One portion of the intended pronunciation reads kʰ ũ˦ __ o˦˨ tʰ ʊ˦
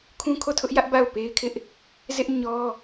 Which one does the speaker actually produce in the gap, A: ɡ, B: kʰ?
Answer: B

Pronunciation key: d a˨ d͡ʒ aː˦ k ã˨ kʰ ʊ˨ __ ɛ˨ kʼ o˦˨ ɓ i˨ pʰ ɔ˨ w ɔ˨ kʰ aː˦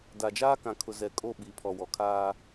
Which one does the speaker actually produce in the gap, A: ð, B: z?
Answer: B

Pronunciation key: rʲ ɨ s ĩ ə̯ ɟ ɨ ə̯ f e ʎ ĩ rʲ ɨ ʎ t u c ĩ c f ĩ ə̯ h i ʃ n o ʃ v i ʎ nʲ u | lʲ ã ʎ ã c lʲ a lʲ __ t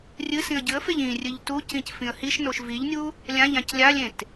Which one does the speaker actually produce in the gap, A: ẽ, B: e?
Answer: A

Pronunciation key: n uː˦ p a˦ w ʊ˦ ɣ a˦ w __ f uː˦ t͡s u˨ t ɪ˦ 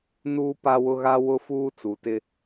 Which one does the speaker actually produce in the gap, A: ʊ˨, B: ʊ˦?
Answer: B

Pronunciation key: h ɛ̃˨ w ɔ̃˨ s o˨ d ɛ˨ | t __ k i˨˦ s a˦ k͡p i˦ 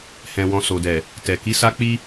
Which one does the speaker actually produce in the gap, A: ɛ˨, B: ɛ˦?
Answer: A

